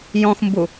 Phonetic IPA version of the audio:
jɔ̃xmbu

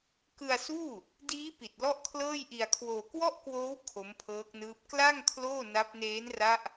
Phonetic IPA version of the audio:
kɯ˧a̯suː˥˩ | diː˦˥pi˨˩t̚ lɔ˥˩ʔkʰlɤː˥˩j ʔi˧a̯kʰwoː˧ kwɔ˥˩ʔkwoː˦˥w kʰo˦˥mpʰɤː˦˥k̚nɯː˦˥p̚ kla˥˩ŋ kʰloː˥˩na˦˥p̚ neː˦˥nra˦˥ʔ

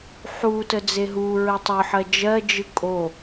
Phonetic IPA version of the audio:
ħu təd͡zeɦuɹə tˤœħɜ d͡ʒɜd͡ʒɯ kʼo

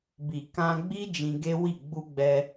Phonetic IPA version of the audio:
bi˨kã˧ɡ͡bi˦ d͡ʒĩ˧ɡe˦wi˦˨ ɡ͡bu˧ɡ͡bɛ˧

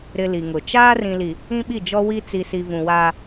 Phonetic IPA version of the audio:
ɾɪ˨ li˨ŋʊ˨ t͡ʃaː˦rĩ˨li˨ | ĩ˦ɓi˦˨d͡ʒɔ˦ wi˦ t͡si˨si˨ vũ˨waː˦

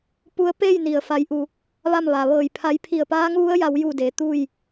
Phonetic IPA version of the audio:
pu˧˥ə̯ pe˥˨j ni˩ə̯ fa˩˧jʔu˩ | ʋa˥˨mʋa˩ ʋɤː˧˩jpʰa˧˥j pʰi˧˩ə̯paː˧˥ŋʋu˧˥ə̯ ja˧˥wju˥˨ de˩˧t̪u˥˨j

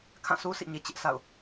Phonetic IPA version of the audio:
kʰã˦˨sʰu˦sʰḭ˦˨ɲe˨ t͡ɕɪ˦ʔ sa̰˦˨ʊ̯

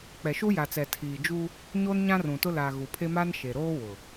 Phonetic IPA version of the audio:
k͡pɛ˨ʃu˦ ja˨t͡sɛ˨ tʰiː˨ d͡ʒu˦ | ɲoː˦nɲã˦rũ˨tʊ˦ la˨ ɣu˨pʰe˦maː˦nʃe˨ ɾoː˦ wʊ˨

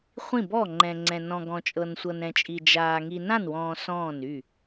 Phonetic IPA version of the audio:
χʷĩ˥˩bɔ˥˩ŋ͡ǃɛ̃˨ŋ͡ǀɛ̃˨ nɔ̃˨ɡɔ̃˨t͡ʃʼɤ˨n sʷɤ˨nɾɛ̃˨t͡ʃʼi˨ d͡ʒaː˨ ŋi˨nã˥˩nwɔ̃ː˨ sɔ̃ː˥˩ny˥˩

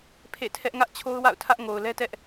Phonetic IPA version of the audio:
pʰḛ˦˨tʰɛ˦ʔ ŋä˦ʔt͡ɕʰo˦ʊ̯wa̰˦˨ʊ̯ tʰä˦ʔŋo˨ʊ̯lɛ˦tɛ˦ʔ

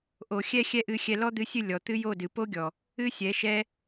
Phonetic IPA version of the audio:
ʔo˨xʲɛ˦ xʲɛ˦ʔɨ˧xʲɛ˧ lɔ˦d̪ɨ˧sʲɨ˦˨ lʲɔ˨t̪ɨ˦ jo˦˨dɨ˨ po˦ɡʲɔ˨ | ɨ˦ sʲɛ˨˦ʃɛ˦

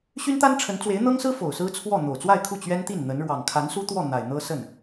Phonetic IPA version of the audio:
ɕy˥nt̪a˥nʈ͡ʂʰə˧˥nt͡swe˧˥ɪ̯ n̪ɤ˥ŋsɹ̩˥ fo˨˩ʊ̯sɹ̩˥t͡sʰwɔ˥˩ n̪o˨˩ʊ̯t͡swa˥˧ɪ̯kʰu˥˩ t͡ɕɥɛ˥nt̪i˥˩n n̪ə˧˥n ɻwɑ˨˩ŋkʰa˧˥nsu˥t̪wɔ˥˩ n̪a˨˩ɪ̯n̪ɤ˥ sə˥˩n

